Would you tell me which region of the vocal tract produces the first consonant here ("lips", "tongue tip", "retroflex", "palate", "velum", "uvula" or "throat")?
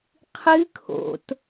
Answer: uvula